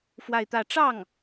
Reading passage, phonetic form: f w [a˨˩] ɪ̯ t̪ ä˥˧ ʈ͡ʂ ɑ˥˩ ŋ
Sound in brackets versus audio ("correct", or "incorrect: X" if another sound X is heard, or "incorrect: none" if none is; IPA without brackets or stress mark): incorrect: a˥˧